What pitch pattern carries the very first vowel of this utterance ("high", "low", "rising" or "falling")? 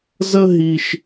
high